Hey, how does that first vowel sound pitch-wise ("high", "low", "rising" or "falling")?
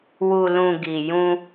low